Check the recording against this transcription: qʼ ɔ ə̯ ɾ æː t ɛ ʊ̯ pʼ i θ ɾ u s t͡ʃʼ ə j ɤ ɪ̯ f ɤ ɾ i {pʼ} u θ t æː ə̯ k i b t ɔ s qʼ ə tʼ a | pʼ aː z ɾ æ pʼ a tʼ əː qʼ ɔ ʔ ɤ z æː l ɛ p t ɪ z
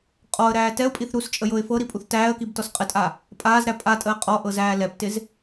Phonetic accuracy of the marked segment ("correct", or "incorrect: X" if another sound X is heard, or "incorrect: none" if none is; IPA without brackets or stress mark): correct